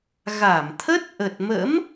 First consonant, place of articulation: velar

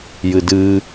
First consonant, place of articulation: palatal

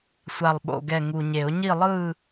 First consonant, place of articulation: alveolar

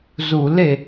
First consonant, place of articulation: alveolar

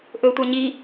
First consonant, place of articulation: glottal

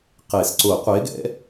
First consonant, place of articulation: uvular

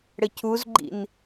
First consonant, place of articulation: retroflex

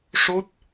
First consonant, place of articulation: retroflex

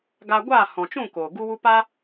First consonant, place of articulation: velar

